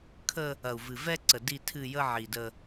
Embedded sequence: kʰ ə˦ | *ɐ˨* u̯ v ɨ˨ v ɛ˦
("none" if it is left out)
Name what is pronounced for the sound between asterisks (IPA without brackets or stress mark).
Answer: ɐ˨